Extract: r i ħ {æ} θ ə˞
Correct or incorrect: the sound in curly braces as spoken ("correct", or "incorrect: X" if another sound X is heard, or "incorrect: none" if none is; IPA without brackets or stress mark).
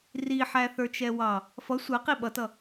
correct